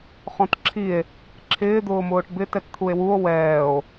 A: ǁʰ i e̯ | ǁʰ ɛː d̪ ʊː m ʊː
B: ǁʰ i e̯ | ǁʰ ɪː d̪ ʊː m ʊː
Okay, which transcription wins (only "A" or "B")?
B